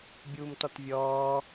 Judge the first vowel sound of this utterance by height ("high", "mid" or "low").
high